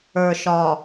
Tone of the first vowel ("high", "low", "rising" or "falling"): low